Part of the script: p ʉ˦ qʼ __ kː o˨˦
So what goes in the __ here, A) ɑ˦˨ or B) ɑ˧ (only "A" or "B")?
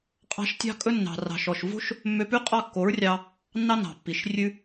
A